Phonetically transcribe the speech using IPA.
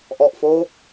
ʔ ɔ˨˩ ʔ f oː˦˥ k̚

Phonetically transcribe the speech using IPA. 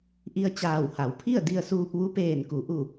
ʔ i˧ ə̯ t͡ɕ aː˧˩ w h a˩˧ w pʰ i˥˨ ə̯ d i˧ ə̯ s uː˧ p̚ ʋ u˧˥ p eː˧˩ n k u˩˧ ʔ u˧˩

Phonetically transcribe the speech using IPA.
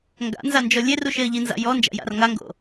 ŋ ɡ a̰ n z a n d͡ʒ ɔ lʲ e r u ʃ e ə̯ ʎ i n z a̰ j ɔ n d͡ʒ a̰ j a̰ r ŋ a ŋ ɡ o̰

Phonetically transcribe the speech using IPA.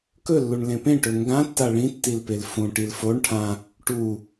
k ɵ lː u ɳ l ẽ p ẽ ʈ ɵ ŋ ɡ ã tː a ɭ ĩ tː i l p e l f ũ ʈ i l f o ɳ ʈʰ ã | ʈ u

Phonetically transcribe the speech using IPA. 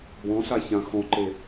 b ɔ̃ ɬ a ç ã x ɔ̃ ǃ e

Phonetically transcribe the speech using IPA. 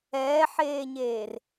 ɛː ħ eː ɲ eː r

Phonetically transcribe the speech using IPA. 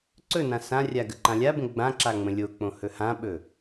ǀ ɵ n ã s ã rʲ a ɡ ə ǃ ã lʲ a b ə̃ ɡ͡b ã ǁ a ŋ͡m ə̃ lʲ o k͡p õ h ɵ h ã ɓ ɵ

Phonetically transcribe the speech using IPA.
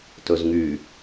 t ɵ z ŋ y

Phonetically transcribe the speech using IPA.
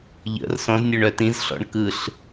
ʎ ə̰ r s ɔ̃ z nʲ œ ɳ œ t ĩ z ɬ ɔ̰ ɳ k ɯ ɬ

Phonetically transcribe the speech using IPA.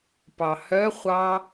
p ɑ h œ χʷ ɑ

